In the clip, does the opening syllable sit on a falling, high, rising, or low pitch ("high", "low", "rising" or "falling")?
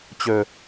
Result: low